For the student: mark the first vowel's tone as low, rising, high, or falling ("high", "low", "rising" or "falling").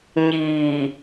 low